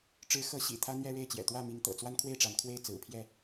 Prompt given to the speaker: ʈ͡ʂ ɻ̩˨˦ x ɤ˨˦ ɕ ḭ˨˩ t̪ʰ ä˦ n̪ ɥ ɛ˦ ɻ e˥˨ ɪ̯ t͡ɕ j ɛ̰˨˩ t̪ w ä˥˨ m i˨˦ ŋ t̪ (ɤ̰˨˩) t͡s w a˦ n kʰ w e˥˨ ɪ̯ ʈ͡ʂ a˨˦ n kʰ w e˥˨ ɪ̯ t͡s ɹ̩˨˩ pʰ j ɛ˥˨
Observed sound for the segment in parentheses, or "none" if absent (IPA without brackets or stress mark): ɤ̰˨˩